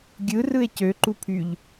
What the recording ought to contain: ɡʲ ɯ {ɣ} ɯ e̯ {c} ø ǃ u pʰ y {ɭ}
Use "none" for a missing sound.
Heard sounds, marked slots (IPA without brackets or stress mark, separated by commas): r, c, ʎ